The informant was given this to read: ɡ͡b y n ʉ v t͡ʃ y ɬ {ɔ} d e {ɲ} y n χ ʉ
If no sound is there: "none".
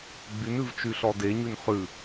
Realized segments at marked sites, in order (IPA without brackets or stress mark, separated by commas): ɔ, ɲ